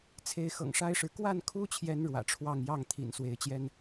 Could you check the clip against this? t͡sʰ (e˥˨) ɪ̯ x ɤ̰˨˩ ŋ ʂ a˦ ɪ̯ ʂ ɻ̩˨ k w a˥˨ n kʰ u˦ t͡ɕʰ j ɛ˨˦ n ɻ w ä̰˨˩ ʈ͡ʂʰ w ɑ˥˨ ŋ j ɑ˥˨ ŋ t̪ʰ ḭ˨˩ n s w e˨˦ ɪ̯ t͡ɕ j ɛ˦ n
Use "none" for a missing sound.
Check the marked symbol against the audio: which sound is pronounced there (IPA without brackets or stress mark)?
e˨˦